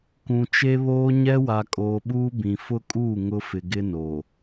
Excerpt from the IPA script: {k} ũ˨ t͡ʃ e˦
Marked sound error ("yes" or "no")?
no